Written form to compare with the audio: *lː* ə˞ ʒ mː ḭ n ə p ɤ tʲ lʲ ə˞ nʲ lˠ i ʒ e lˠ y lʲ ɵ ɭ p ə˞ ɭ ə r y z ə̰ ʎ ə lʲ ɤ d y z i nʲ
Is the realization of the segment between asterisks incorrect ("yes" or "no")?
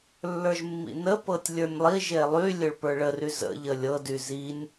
no